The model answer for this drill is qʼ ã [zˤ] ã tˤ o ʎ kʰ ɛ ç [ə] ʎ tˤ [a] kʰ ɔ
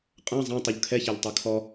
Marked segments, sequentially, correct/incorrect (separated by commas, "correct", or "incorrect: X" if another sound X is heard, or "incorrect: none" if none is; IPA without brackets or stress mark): correct, incorrect: a, correct